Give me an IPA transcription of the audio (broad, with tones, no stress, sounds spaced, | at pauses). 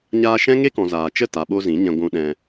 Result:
ɲ aː˧ ʃ ɛ̃˦ ŋ e˦ k ɔ̃˨ z aː˨ t͡ʃ ə˦˨ t a˨ ɓ o˧ z ĩ˨˦ ɲ ɛ̃˧ ɡʷ ũ˧ ɗ ɛ̃˧